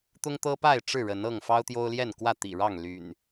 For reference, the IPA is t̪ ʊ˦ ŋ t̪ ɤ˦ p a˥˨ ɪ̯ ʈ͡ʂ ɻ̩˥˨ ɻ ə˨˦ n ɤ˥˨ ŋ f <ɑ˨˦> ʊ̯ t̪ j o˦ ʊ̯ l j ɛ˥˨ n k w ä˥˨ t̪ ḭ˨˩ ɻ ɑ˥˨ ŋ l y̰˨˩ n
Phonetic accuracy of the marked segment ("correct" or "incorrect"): incorrect